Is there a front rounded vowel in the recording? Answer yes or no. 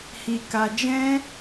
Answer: no